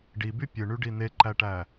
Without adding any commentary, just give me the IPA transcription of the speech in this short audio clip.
ɖ i b y pʲ ɯ ɳ y ɖ i n e ǃ æ ʈ æ

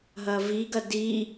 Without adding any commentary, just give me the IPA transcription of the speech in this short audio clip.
ɦ ɐ v i ɡ ɐ d i

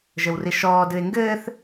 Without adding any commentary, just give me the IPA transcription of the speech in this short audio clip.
ʒ ɘ w r i ʃ ɔː d ɨ e̯ ŋ ɡ ɘː θ

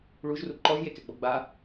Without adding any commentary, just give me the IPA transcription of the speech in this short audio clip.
ɭ u ʒ r u ǃ ɔ ʒ j e k ɛ ɡ͡b ɔ ɡ͡b a

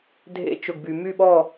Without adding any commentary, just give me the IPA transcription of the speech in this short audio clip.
dʱ ḛ˧˥ t͡ʃ ʊ˨ ɡ b y˨ m y˥˨ ɓ ɔ˥˨

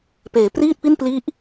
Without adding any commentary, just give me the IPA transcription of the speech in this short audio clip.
p eː˩˦ p r iː˥˩ t̚ p i˥˩ n p l i˦˥ ʔ

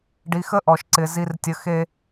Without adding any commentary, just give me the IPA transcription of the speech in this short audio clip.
ɖ i˨ x ə˦ ʔ ɔ˨ ʃ ǀ ɪ˨ z i˦ r tʲ ə˦ x e˦

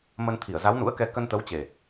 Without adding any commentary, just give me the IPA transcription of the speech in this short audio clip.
m ə˧ n t̪ʰ i˧˩ ə̯ z a˨˦ w n ṵ˧˥ ə̯ k ɛ˧ k ə˧ n t̪ ə˨˦ w t͡ɕ e˨˩

